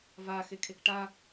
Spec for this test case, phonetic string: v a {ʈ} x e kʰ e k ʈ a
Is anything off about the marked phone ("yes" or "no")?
yes